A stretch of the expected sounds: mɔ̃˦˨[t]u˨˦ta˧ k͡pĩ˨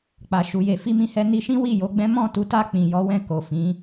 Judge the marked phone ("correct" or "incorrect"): correct